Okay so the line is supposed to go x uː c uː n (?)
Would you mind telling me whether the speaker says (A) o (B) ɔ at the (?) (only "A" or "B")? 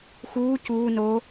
A